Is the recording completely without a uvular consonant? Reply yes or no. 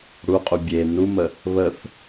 no